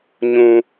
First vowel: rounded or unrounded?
rounded